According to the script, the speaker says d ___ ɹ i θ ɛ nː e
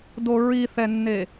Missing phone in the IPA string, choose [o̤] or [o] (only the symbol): o